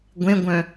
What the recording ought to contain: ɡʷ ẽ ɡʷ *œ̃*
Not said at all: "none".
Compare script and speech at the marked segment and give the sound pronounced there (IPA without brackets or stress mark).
œ̃